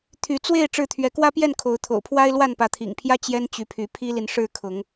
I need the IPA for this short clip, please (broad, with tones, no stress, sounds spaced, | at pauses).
t̪ʰ y˨˦ t͡s w e˥˨ ɪ̯ ʈ͡ʂ ɻ̩˥˨ t̪ʰ ɥ ɛ˨˦ k w ä˦ p j ɛ˥˨ n kʰ o˨˦ ʊ̯ t̪ʰ o̰˨˩ ʊ̯ pʰ w a˦ ɪ̯ l w a˥˨ n p ä˨˦ t̪ʰ ḭ˨˩ ŋ pʰ j ä˦ t͡ɕ j ɛ˦ n t͡ɕ y˨˦ pʰ y˨˦ pʰ i˦ l i˨ n ʂ ɻ̩˥˨ kʰ ʊ˨˦ ŋ